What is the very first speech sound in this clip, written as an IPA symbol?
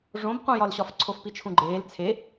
ʐ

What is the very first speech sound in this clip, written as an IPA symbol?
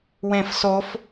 w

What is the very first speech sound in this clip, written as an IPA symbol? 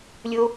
lʲ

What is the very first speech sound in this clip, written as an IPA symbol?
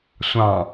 sʷ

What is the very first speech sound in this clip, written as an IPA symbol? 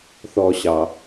θ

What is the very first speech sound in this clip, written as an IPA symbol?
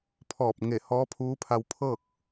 pʰ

